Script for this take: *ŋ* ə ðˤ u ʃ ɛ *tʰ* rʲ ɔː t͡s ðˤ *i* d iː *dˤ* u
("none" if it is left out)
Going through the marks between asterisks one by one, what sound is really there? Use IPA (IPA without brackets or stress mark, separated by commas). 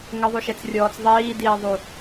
ŋ, t͡s, iː, ðˤ